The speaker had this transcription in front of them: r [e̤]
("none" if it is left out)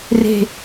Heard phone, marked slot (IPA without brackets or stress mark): e̤